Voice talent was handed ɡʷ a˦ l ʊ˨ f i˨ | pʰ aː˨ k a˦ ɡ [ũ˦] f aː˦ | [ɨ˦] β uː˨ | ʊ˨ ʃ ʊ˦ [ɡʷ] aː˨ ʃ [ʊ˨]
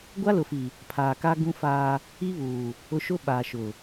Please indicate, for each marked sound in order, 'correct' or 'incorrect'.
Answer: correct, incorrect: i˦, incorrect: ɓ, correct

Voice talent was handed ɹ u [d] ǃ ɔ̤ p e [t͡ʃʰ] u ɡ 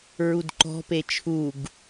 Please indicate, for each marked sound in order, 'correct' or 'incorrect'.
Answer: correct, correct

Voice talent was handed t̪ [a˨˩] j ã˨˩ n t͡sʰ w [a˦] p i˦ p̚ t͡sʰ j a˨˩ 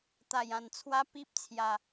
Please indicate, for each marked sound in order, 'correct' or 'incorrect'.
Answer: correct, correct

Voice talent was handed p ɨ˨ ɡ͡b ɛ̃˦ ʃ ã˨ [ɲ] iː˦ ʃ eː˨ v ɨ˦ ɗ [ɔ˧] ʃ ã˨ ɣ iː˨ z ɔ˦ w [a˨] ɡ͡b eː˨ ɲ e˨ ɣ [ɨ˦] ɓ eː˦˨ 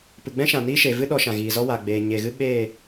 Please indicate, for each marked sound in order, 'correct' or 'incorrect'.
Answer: incorrect: n, correct, correct, correct

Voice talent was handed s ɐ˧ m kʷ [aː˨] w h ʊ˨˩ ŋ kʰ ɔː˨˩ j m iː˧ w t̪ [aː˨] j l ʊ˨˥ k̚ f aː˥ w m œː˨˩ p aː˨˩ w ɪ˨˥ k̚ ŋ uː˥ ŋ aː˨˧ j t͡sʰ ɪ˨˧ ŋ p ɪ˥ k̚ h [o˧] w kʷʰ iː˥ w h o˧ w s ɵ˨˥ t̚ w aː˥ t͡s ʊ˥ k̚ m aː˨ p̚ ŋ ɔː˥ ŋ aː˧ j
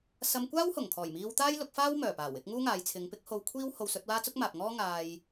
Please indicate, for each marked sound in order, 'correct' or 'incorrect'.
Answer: incorrect: aː˥, incorrect: aː˥, correct

